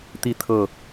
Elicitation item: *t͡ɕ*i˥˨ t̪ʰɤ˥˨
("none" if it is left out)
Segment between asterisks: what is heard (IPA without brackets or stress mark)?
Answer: t̪